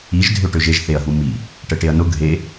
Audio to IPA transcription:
i ʒ dʱ ø ʈ ø ʒ e ʒ θ e ɐ̯ ɦ u m i | ʈ ə ʈ e ɐ̯ n ʊ ɡʱ e

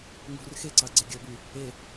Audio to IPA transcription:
ŋ ṳ r x e ǀ ɑ ɡ͡ǀ e ɡʲ ɔ b y | e

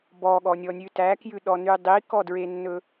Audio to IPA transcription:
b ɔ ɠ ɔ nʲ ɔ nʲ ʉ t æ k j ʉ ɗ ɔ n y dˤ i k ɔ d ɹ e nː ɵ

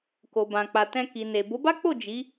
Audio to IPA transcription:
k o˨ b ã˨ k͡p a˨ t ɛ̃˧ k i˨ n e˨ b o˨˦ b a˦ k͡p o˦˨ d͡ʒ i˨˦

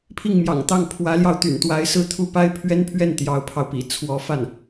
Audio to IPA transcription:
pʰ i˥˩ ŋ m j ɑ̰˨˩ ŋ t̪ ɑ˥˩ ŋ pʰ w ä˧˥ l j ɑ˧ ʊ̯ t̪ y̰˨˩ n t̪ w a˧˥ ɪ̯ s ɹ̩˥ t̪ʰ u˥˩ p a˥ ɪ̯ pʰ ɥ ɛ˥ n pʰ ɥ ɛ˥˩ n t̪ j ɑ˧˥ ʊ̯ pʰ ɑ˧ ʊ̯ p ḭ˨˩ t͡sʰ w ɔ˧˥ f a˥˩ n

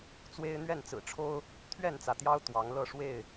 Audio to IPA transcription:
t͡s w e˦ ɪ̯ n̪ ɥ ɛ˥˨ n t͡s ɹ̩˨˩ ʈ͡ʂʰ o˦ ʊ̯ | t̪ʰ ɥ ɛ˥˨ n t͡s ä˩ t̪ j ɑ˦ ʊ̯ t̪ w ɑ˨˦ ŋ l ɤ˥˨ ʂ w e˥˨ ɪ̯

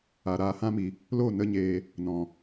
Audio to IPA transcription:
a˨ ɾ aː˧ h ã˦ m i˨ | l o˦˨ n ə˦ ɲ eː˧ | n ɔ̃˨

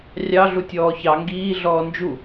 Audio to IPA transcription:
rʲ ɑ ɮ u tʲ ɔː ç ɑ ŋ ɡ iː ɮ ɔː n d͡ʒ u

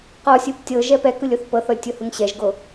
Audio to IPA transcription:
q ɔ sʲ ɯ p tʲ ɤ ʒ ɛ p ɛ k ɯ lʲ o θ p ɤ θ ɔ lʲ tʲ o h ɯ ŋ ɕ ɛ ʒ ɡ o

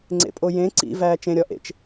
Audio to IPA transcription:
ŋ͡ǀ ḛ pʼ o j ẽ ǀ ḭ v æː t͡ʃ ẽ ɾʲ ɒ ʔ ḛ t͡ʃ

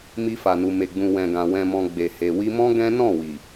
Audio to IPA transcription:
m i˧ f a˨ n u˨ m e˨ ɡ͡b ũ˨ w ɛ̃˨ ɡ ã˨ w ɛ̃˨ m ɔ̃˨ ɡ͡b e˨ h e˨ w i˧ m ɔ̃˦ ɡ ɛ̃˦ n ɔ̃˦˨ w i˨

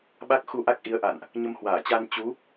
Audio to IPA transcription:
ɓ a˦˥ k̚ x u˧ ʔ a˦˥ k̚ ʔ i˨˦ ə̯ ʔ a̰˧˨ n ʔ | ɲ ə˧ m h w aː˧˩ t͡ɕ a˧ n t͡ɕ u˨˦

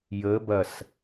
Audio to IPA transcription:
j ə b ɐ s

